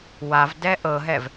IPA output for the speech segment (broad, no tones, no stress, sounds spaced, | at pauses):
w a v d ɛ ʔ ɤ ɦ ɛ v